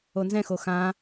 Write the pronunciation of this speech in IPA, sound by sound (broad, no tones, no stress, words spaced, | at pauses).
onzɛ̃xo xã